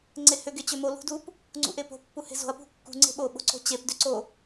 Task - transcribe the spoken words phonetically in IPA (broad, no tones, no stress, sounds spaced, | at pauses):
ŋ͡ǀ e h ʏ ɡ e t͡ɕ ʏ m o l ṳ d u p | ŋ͡ǀ ṵ ʔ e p o̤ pː u h e̤ z o̤ ɐ̯ p ṳ kː ṳ ŋ͡ǀ e̤ ɓ o ɓ o̤ ǀ o̤ t͡ɕ e p d ʏ ǀ o